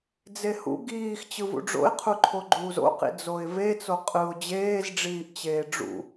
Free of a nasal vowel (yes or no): yes